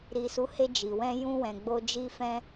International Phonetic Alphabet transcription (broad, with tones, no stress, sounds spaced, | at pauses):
ɾ i˨ s u˨˦ h e˧ d͡ʒ i˨ w ɛ̃˧ j ũ˧ w ɛ̃˨ ɡ͡b o˧ d͡ʒ i˦ f ɛ̃˦